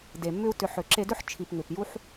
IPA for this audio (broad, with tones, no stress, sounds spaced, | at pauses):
d e˨ mː ʏ˦ u̯ t ʏ˧ ħ ʏ˨ ǁ e˧ d ʏ˦ ħ t͡ʃʰ i˨ p ŋ ʏ˨ p j u˦ ħ